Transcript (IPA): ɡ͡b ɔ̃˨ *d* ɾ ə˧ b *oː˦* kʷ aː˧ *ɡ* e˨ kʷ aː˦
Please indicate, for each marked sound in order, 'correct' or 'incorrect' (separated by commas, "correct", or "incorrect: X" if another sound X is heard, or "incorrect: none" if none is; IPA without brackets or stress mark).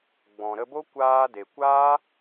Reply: incorrect: none, incorrect: o˦, incorrect: d